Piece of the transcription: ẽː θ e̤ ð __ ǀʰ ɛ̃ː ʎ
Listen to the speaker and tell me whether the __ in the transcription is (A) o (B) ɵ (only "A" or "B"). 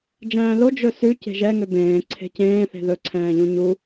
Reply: B